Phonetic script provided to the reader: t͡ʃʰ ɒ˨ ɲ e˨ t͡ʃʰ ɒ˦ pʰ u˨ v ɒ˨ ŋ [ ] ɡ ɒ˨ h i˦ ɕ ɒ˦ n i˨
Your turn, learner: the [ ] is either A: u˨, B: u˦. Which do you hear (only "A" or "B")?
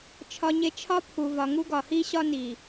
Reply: B